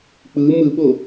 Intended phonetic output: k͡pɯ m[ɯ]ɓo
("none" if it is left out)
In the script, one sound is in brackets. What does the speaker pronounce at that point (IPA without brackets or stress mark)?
ɯ